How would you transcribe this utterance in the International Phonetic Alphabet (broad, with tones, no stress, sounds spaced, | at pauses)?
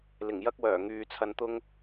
l ɪ˨˩ ŋ j ɐ˥ k̚ w œː˨˩ ŋ yː˨ t͡sʰ ɐ˧ n t̪ ʊ˥ ŋ